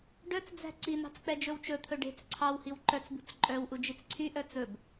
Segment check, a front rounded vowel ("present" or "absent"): present